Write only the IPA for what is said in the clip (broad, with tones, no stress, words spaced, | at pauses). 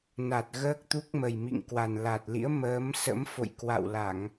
na˨˩t̚ɣəː˦˥k̚t̪u˦˥k̚mə˨˩j mḭ˧˨ŋkwa˨˩n la˨˩t̚lḭ˧˥ə̯ məː˨˦msə̰˧˥m fo̰˧˨jkwa̰˧˨wla˧˩˨ŋ